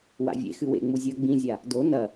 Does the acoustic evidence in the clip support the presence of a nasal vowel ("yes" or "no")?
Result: yes